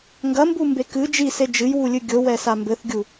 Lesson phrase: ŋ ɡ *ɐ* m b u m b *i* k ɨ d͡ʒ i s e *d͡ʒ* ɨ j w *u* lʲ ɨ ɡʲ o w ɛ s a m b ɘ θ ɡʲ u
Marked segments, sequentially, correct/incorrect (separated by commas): correct, incorrect, correct, correct